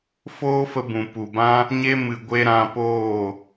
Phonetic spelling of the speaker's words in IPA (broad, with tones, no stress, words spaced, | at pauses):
foː˦fə˧ bũ˨ pu˨bã˦ | ɲe˦ mɨ˨ɡʷe˧ ɾã˧ poː˦˨